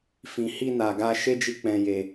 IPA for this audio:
f ĩ˨ h i˧ n a˨ ɡ a˧ ʃ e˦ d͡ʒ i˧ k͡p ɛ̃˨ j e˨

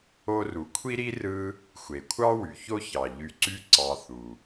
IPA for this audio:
o˥ r u˨ kʷʰ i˥ ɾ i˥ r ɯ˦ | xʷ e˩ kʷʰ ɑ˥ w y˩ ç o˦ ç ɑ˩ ʎ y˨ ǀ y˦ ǀ ɑ˨ θ u˩

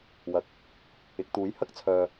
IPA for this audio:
w ɐ˨ k̚ | ɪ˨˥ k̚ t̪ uː˨˥ j h ɐ˥ k̚ t͡sʰ œː˨

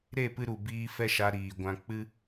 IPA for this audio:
ɾ e˦˨ p ɨ˧ ɾ u˨ b iː˧ f ɛ˦ ʃ a˧ ɾ iː˨ ɡʷ ã˧ k͡p ɨ˦

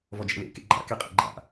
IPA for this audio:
v ɔ d͡ʒ ɛ̰ l ḛ k ḛ ɡ͡ǃ a̰ k e qʼ ɛ̰ ɡ͡ǃ a̰

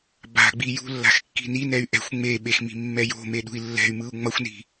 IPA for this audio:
b a̤ ɡ͡b i j ṳ lː a̤ x kː i̤ n i n ɛ y̯ ʔ ɛ̤ xʷ ŋ͡m e ɓ e x m i̤ mː ɛ j o̤ m e ɗ ṳ i̯ lː ɛ̤ y̯ m ɯ u̯ ŋ͡m ʌ xʷ n i̤

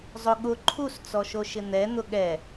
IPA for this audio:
zˤ ʊ ɠ ʊ ǃʰ u s t͡s ɔ ʃ o ʃ ɪ n̪ ɛ n̪ ʊ ɠ ɛ

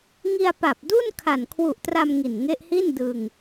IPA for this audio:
ŋ i˧ a̯ p a˨˩ p̚ d u˥˩ n kʰ a˨˩ n kʰ w u˨˩ ʔ t r a˧ m ŋ i˨˩ n ŋ e˦˥ ʔ h i˥˩ n d ɯ˧ ŋ

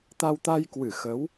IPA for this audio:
t̪ a˧ w t̪ a˧ j k w ɨ˧˩ x ə˨˦ w

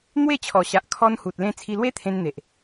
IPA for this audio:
n̪ w e˥˧ t͡ɕʰ ɔ˨˩ ɕ a˨ ʔ kʰ ɔ˧ n h u˨ t̚ l ẽ˧ t͡sʰ i˧ l w e˦ t̪ʰ ẽ˧ n n̪ e˨ ʔ

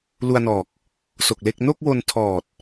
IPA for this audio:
l u˧ a̯ n ɔː˨˩ k̚ | s o˨˩ k̚ l e˥˩ k̚ n o˥˩ k̚ w o˧ n tʰ ɔː˨˩ t̚

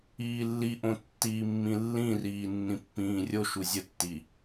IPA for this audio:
iː lː i ʔ õ tː iː mː ĩ lː ĩ r iː nː ĩ pː ĩː rʲ o ʃ u zʲ ə tː i

